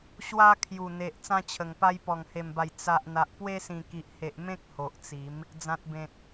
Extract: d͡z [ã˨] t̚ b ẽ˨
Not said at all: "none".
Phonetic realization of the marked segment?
ã˨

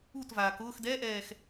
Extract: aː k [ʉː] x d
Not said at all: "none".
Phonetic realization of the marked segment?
ʊː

